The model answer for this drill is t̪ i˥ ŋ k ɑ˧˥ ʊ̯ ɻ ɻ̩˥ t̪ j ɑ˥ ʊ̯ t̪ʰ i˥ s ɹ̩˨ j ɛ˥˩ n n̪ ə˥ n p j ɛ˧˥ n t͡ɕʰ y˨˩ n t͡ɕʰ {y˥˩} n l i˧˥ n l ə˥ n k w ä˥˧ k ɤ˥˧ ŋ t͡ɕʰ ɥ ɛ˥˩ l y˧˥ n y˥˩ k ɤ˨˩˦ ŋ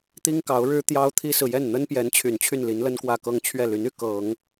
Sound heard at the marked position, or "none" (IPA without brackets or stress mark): y˥˩